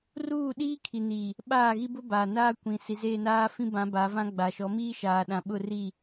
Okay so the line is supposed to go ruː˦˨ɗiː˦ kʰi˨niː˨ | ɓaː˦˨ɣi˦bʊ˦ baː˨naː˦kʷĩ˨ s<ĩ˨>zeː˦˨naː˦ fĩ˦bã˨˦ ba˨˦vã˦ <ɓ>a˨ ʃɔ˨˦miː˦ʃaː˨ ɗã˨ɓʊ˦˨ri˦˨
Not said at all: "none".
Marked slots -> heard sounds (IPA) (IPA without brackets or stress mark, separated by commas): i˨, ɡ͡b